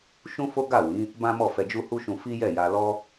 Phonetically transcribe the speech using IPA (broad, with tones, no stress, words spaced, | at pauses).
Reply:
ʃũ˦fo˦ ɡa˦˨wĩ˨˦ | bã˦mɔ˦˨ fɛ˧d͡ʒu˦hu˦ʃũ˧ fi˦jɛ˦˨ja˧ lɔ˦